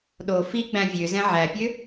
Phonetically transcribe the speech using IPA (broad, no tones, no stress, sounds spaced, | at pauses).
ɗ o f i ɡ͡b æ̃ vʲ ø z ɛ̃ ʕ æ pʲ ø